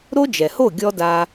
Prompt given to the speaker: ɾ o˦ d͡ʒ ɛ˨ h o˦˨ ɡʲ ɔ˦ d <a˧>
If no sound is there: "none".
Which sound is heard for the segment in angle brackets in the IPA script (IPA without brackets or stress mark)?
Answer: a˧